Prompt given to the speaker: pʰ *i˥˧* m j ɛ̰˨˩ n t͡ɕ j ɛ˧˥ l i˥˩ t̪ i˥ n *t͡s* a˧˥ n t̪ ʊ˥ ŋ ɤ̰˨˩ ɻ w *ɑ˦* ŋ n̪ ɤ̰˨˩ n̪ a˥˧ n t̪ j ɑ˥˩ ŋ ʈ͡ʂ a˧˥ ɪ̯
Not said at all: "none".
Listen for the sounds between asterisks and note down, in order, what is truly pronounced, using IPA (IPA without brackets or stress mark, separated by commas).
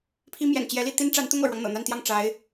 i˥, ʈ͡ʂ, ɑ˦